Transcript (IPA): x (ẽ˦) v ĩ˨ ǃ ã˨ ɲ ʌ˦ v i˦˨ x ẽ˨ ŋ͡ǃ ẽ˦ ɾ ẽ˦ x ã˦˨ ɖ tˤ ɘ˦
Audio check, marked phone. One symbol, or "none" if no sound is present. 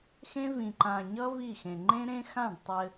ẽ˦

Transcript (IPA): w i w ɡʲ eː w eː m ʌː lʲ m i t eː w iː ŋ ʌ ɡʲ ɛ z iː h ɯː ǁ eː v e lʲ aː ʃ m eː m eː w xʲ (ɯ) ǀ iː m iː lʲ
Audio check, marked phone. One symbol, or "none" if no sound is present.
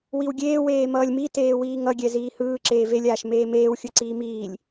ɯ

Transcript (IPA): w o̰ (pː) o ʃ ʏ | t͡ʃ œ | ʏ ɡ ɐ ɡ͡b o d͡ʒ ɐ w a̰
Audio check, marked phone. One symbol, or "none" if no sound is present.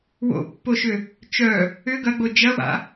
pː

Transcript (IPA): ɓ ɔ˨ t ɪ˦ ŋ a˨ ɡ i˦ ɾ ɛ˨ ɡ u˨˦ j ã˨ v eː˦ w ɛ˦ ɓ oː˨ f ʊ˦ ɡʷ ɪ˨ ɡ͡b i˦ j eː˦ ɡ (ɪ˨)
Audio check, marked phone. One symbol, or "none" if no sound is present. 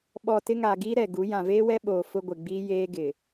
ɪ˨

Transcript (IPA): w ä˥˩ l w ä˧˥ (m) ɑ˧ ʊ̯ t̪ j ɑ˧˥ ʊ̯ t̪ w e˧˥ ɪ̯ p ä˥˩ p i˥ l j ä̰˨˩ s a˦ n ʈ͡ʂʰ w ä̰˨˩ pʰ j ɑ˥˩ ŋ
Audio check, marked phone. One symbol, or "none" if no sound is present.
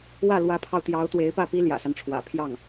pʰ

